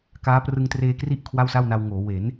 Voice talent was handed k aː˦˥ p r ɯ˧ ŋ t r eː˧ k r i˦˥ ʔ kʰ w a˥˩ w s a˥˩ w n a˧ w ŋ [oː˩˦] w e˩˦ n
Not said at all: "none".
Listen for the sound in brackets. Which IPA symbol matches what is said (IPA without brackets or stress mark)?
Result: oː˩˦